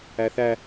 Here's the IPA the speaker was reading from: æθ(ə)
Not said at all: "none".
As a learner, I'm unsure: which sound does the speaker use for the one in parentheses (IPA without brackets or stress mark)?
æ